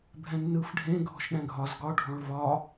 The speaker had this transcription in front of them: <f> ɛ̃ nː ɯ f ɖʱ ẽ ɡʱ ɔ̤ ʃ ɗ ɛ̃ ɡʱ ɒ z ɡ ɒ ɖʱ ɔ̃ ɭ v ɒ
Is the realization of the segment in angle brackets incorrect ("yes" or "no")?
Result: yes